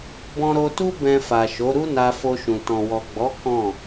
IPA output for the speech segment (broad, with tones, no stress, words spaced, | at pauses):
bɔ̃˧ɾo˧tu˦ bɛ̃˧fa˨ʃo˨˦ ɾu˦na˧ fo˧ʃũ˨ tɔ̃˨wɔ˨ɡ͡bɔ˨˦ kɔ̃˦˨